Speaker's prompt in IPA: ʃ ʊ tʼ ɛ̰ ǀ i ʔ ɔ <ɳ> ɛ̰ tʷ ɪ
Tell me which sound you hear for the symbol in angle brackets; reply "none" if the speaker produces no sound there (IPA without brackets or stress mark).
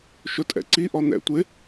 n̪